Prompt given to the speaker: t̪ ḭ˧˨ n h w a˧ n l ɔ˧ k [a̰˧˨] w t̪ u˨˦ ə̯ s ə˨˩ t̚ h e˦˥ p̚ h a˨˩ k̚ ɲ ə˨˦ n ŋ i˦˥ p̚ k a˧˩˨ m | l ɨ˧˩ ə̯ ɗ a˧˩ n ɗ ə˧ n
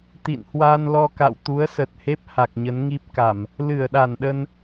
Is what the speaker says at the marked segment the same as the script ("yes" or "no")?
yes